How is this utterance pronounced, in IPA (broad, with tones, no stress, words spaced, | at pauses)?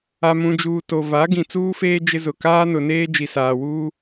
a˨mũ˨d͡ʒuː˨ to˨va˨˦ ɡĩ˨ t͡suː˦feː˦ d͡ʒɪ˦zʊ˨ kaː˦nʊ˨neː˦ d͡ʒi˨saː˨wuː˦